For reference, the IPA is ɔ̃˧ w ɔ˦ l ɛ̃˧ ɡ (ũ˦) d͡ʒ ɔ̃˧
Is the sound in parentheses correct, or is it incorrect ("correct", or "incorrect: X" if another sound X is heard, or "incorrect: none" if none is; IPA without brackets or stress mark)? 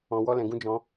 correct